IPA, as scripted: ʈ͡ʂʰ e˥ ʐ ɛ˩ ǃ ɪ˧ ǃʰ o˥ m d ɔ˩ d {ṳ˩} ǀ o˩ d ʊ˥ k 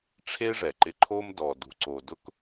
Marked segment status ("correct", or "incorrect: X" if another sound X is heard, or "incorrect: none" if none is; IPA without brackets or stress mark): correct